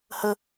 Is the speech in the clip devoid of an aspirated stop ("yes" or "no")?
yes